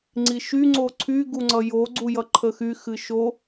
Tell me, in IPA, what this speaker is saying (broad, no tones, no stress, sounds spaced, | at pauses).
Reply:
ŋ͡ǀ i ʃ y ŋ͡ǀ o ǀʰ y ɡ u ŋ͡ǀ ʌ j o ɡ͡ǀ u j ʌ ǃʰ ə x y x ɨ ʃ o